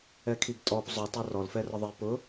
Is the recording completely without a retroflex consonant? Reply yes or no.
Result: yes